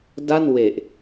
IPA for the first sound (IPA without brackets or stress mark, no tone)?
d